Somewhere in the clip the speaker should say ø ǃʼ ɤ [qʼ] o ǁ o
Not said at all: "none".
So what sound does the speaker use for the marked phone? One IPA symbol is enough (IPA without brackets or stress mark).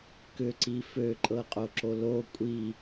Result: qʼ